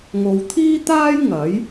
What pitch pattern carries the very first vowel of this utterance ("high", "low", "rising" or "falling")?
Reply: low